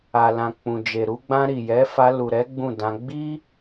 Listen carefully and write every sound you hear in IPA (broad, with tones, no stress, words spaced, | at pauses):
a˨lã˨ k͡pũ˨d͡ʒe˨ ɾu˧ɡ͡bã˧ ɾi˨jɛ˨˦fa˧ lu˨ɾɛ˨˦ ɡ͡bũ˦˨dã˧ ɡ͡bi˦